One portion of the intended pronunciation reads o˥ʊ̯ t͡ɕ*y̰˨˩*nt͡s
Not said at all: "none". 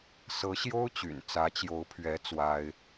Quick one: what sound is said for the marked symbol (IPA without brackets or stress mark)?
y̰˨˩